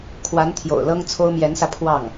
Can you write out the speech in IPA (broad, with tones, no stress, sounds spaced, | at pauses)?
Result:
kʰ w a˧˥ n t̪ʰ j o̰˨˩ ʊ̯ l ɤ˥ ŋ t͡sʰ o˥ ʊ̯ m j ɛ˧˥ n s ä˧ pʰ w ɑ˥˩ ŋ